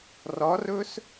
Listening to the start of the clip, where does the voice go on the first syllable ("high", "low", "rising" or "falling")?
rising